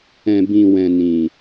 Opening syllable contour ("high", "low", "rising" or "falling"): low